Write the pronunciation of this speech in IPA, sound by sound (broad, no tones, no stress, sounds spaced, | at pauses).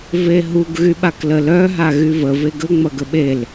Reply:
v e ɦ u ɡ ɣ y ɓ a k l ə l œ ɦ a ɣ y v ə v e ɡ ə ŋ͡m ɐ ɡ ə ɓ e l